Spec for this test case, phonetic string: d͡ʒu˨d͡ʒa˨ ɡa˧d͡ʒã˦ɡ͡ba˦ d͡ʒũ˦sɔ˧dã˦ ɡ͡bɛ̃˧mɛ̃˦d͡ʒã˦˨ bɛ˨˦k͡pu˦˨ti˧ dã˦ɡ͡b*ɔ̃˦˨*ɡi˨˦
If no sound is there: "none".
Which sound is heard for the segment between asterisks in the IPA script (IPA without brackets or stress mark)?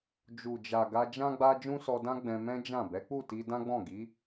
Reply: ɔ̃˦˨